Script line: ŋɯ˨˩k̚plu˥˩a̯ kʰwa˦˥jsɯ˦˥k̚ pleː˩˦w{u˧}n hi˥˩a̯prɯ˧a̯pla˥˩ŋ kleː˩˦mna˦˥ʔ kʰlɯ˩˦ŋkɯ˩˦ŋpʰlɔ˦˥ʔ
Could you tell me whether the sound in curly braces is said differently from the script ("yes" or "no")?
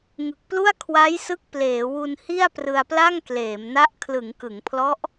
no